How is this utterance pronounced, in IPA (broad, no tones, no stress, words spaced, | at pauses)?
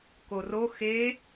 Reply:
koro xe